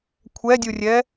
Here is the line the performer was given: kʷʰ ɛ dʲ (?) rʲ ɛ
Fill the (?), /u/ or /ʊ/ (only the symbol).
u